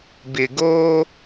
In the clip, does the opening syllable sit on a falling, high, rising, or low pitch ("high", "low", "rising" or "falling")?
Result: low